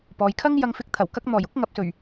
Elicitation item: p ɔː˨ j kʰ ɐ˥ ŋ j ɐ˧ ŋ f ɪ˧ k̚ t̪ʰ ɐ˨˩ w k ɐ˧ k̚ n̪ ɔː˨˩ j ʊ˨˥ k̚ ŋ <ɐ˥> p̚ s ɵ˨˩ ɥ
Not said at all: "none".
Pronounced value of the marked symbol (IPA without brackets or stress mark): ɐ˨